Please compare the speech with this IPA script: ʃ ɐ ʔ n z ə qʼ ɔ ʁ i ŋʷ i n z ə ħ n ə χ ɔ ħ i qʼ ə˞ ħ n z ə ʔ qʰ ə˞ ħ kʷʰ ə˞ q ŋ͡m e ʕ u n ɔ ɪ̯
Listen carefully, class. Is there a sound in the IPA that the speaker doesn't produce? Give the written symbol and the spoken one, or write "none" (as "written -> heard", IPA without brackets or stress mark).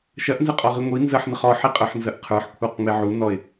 none